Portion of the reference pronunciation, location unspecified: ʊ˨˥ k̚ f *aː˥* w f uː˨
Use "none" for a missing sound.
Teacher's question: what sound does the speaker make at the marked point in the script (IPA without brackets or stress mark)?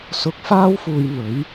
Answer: aː˥